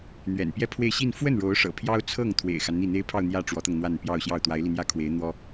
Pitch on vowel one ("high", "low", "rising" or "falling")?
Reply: low